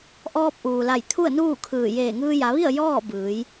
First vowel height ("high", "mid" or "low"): mid